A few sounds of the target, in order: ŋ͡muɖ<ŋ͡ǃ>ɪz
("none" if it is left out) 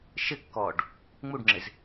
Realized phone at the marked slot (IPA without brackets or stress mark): ŋ͡ǁ